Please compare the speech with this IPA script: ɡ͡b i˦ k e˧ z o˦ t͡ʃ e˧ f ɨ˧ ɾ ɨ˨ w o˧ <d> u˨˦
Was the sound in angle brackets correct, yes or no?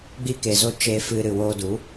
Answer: yes